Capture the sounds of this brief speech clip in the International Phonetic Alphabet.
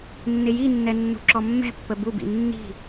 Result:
nː ɪ j i nː ɛ nː ṳ ǁ ɔ mː ɛ̤ pː ə b u b ḭ nː i̤

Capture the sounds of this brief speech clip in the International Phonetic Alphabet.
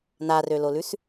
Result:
n a r ø l o l ʉ s

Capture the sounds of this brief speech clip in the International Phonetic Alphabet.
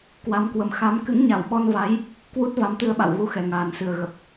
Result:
k w a˧ m k w ə˨˦ m x a˨˦ m k ɨ̰˧˥ ŋ ɲ a˧˩ w ɓ ɔ˧ n v a˨˦ j | k w u˦˥ t̚ v a˨˦ m t̪ ɨ˧ ə̯ ɓ a̰˧˨ w ɣ u˧ x ɛ˨˩ ŋ aː˨˩ n s ɨ˨˩ ə̯ ɣ ə˨˩ p̚

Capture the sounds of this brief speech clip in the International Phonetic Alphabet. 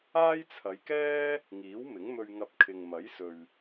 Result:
aː˥ j t͡sʰ ɐ˨˧ j k ɛː˥ | ŋ iː˨˥ w m ɪ˨˥ ŋ m ɵ˧ ɥ ŋ ɐ˧ p̚ kʰ ɪ˨ ŋ m ɐ˨˥ j s ɵ˨ ɥ

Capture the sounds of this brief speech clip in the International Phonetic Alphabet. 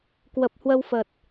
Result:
k w ə˨˩ p̚ h w ə˧ w f ə˨˩ t̚

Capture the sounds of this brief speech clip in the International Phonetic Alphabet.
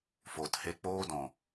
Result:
f o˨ t h e˧ k͡p oː˧ d ɔ̃˨

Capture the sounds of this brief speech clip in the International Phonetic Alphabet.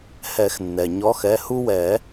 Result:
h ɛ˨˩˦ x nː ɛ˩ ɲ ɔ˨˦ x ɛ˩˧˩ h u˦ w ɛ˨˩˦

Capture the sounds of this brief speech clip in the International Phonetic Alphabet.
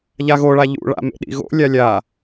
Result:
ʎ a ɣ o ɭ a ʎ ṵ ɭ a̰ m ḛ ɗ ḭ ɣ o̰ lʲ a lʲ a

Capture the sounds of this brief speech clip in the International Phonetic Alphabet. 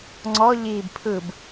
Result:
ŋ͡ǀ ɔ ʎ iː b pʰ ɯ b

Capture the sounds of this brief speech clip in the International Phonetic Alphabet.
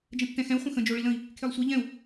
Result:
d͡ʒ ə̃ tː ɛ̃ x ɛ̃ u̯ χʷ ə̃ x ə̃ d͡ʒ o ɭ i l ə̃ i̯ | kʰ e lˠ sʷ e ʎ ɛ̃ u̯

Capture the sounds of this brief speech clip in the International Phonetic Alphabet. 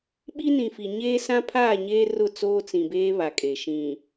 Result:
ɓ i˦ n ĩ˨ f i˨ ɲ eː˦ s ã˦ pʰ aː˦˨ ɲ eː˦ r ʊ˦˨ t͡s oː˦ t͡s ĩ˨ b eː˦ β a˨ kʼ e˨ ʃ ĩ˨

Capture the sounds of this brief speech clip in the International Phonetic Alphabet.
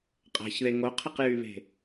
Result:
qʼ a̤ ç ð e ŋ o qʰ ə q j y β e̤

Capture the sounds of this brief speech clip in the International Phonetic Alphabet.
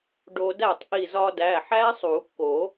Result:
ɖ o˧ d æ˥˩ tˤ ʔ i˧˩ z ɒ˧ d æ˩˧˩ ħ æ˦˥ sˤ u˨˩˦ kː o˨˩˦

